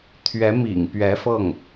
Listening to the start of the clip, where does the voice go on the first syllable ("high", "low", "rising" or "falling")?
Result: rising